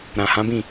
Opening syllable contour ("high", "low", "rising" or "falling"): low